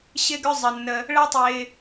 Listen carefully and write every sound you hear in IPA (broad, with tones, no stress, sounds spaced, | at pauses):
ɕ ɪ˦ ɡ ʏ˦ zˤ ə˨ nː ə˧ | ɭ ɛ˦ tˤ ɪː˧